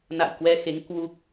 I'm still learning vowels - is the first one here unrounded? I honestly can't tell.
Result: yes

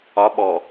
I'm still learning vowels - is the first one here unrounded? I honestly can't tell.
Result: no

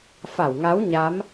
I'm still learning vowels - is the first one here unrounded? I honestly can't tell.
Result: yes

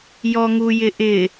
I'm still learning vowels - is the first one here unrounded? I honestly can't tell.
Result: no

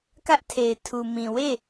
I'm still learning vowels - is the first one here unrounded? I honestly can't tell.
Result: yes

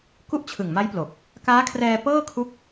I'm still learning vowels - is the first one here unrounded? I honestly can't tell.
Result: no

